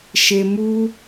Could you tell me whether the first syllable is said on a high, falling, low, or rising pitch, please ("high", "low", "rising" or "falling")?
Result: low